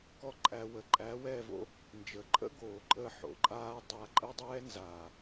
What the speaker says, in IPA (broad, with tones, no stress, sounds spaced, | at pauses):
k ɔ˦ ǃʼ æ˧ w ə˨ ǃʼ æ˨˦ w ɛ˦˨ v o̰˦ | n d͡ʒ ə˨ ǃʼ ə̰˦ ɡ oː˨ ǃʼ əː˧ ħ o̰˨ ǃʼ aː˧ dˤ a˧ ǃʼ ə˦ dˤ ɛː˦ n z aː˨